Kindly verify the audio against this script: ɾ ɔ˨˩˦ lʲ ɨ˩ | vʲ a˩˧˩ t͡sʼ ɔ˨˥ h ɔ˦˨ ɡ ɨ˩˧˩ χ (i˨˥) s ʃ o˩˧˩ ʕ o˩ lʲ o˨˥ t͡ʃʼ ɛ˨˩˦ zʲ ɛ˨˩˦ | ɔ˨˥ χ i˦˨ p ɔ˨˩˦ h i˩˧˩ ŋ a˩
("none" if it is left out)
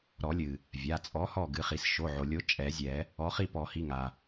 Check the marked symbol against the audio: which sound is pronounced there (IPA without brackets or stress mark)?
i˩